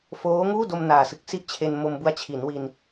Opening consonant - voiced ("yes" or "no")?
no